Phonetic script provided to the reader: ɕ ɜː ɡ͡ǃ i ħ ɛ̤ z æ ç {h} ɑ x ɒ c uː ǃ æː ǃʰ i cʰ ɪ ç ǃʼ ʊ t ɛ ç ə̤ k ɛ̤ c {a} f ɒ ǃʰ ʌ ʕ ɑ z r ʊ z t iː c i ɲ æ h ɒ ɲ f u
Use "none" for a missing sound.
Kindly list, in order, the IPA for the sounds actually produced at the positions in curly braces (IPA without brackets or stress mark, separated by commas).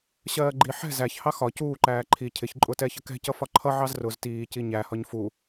h, ʌ